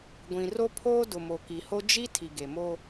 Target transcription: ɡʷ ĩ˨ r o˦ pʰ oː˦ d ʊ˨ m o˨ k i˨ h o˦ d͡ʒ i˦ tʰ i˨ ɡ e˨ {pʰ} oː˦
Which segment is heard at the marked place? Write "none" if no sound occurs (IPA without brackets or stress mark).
m